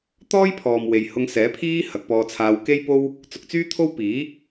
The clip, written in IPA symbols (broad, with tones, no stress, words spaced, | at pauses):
t̪ɔː˥jpʰɔː˨m we˨jhʊ˧ŋsɛː˨˥ pʰiː˥ hɐ˨˥k̚pɔː˧t͡sʰaː˧w ke˥jpo˥w | t͡sʊ˧k̚t͡syː˥t̪ʰo˥w piː˨˥